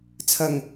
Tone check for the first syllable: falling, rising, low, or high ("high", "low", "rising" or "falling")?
low